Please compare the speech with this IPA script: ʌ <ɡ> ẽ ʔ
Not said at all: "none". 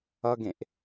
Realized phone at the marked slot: ɡ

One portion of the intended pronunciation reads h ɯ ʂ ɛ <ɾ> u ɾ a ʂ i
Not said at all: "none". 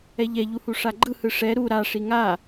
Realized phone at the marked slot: ɾ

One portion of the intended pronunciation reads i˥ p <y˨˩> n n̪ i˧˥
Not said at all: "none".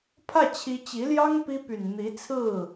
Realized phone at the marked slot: y˨˩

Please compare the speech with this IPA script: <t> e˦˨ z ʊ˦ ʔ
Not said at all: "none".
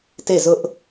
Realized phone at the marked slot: t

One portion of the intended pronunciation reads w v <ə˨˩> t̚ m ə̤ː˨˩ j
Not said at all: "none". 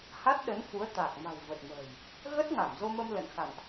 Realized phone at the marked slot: ə˨˩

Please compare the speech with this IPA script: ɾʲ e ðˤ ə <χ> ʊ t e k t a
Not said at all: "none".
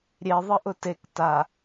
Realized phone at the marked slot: ʔ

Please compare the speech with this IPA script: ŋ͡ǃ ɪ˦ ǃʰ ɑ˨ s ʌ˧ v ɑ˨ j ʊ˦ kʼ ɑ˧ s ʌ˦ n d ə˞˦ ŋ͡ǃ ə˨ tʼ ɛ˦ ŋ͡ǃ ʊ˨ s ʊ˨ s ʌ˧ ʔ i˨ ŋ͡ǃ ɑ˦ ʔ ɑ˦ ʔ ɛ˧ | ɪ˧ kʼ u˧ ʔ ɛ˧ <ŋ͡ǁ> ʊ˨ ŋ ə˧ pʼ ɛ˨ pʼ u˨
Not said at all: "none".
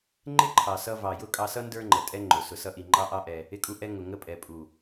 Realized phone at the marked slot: ŋ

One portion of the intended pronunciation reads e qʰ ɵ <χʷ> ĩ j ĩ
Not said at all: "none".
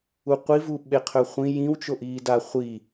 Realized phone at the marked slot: χʷ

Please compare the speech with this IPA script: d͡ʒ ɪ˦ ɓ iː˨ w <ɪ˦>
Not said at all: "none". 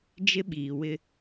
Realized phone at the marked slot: ɪ˦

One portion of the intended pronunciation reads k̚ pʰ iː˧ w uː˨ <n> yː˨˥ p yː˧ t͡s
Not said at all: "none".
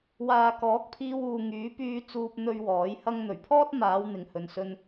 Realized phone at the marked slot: ŋ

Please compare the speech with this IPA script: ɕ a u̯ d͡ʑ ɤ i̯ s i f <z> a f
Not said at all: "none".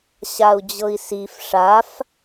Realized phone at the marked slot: ʂ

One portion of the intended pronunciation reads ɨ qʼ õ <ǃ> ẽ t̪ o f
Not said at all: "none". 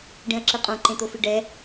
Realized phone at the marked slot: ǃ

